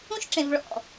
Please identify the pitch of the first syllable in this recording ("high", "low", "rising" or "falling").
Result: high